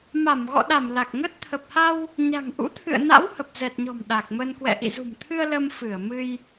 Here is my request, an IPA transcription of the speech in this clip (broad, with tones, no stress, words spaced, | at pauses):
ma˧˩mɣɔ̰˧˨ɗa˧˩m la˨˩k̚ŋə˦˥t̚ t̪ʰə˨˩p̚ha˧w | ɲa̤˨˩ŋʔṵ˧˥t̪ʰɨ̰˧˨ə̯na̰˧˥w hə˨˩p̚zɛ˨˩t̚ɲɔ̤˨˩m ɗa˨˩k̚mə˧n kwɛ̰˧˨ʔḭ˧˨zṳ˨˩mt̪ʰɨ˧ə̯ lə˧m fɨ˧˩ə̯ mɨ˧j